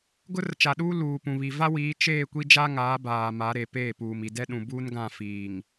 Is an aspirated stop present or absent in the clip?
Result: absent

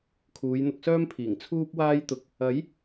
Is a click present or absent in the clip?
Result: absent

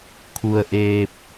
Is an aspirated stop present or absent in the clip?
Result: present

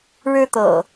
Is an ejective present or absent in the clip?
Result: absent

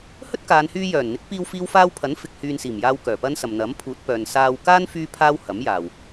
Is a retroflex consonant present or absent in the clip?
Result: absent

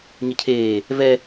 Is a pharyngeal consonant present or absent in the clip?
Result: absent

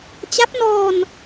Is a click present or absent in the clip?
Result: absent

